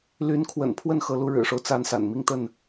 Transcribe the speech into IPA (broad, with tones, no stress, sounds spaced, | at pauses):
l y˨˦ n kʰ w ə̰˨˩ n pʰ w ə˥˨ n x ɤ˨˦ l u˨˦ ɻ ɻ̩˨˩ ʂ o˦ ʊ̯ t͡s a˦ n s a̰˨˩ n m i˥˨ ŋ t̪ ə˥˨ n